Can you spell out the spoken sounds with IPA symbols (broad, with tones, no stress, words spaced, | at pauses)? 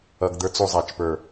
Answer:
ʌ˧ɡd̪ə˞˦t͡su˧ zˤæ˨t͡ʃ pə˞˨